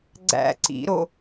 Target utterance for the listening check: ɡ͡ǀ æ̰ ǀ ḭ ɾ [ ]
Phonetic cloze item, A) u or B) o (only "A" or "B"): B